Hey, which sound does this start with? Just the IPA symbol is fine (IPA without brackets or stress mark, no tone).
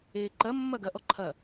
eː